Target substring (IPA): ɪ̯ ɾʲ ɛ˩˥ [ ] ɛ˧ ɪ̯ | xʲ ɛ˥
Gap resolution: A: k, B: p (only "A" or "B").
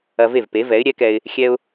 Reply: A